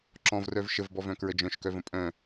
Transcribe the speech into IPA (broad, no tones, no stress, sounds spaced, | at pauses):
ǁ ɔ̃ v r œ v ʃ ə v b ɔ v œ̃ k ɹ ə d͡ʒ œ̃ ʃ k œ v ə̃ pʼ œ̃